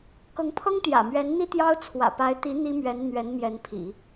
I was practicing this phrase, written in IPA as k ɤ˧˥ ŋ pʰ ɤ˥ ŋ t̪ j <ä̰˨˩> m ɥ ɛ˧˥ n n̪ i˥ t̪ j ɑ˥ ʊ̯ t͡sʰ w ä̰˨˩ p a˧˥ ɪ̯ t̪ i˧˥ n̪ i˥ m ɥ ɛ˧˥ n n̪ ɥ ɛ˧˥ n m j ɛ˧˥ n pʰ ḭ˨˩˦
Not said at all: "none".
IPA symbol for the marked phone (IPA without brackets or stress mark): ä̰˨˩